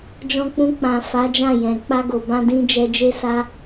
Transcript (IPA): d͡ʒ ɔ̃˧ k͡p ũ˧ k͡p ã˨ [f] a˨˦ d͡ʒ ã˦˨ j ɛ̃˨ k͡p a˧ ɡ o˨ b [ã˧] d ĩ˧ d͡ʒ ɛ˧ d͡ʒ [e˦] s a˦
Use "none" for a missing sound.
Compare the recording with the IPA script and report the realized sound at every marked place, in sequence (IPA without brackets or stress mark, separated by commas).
f, ã˧, e˦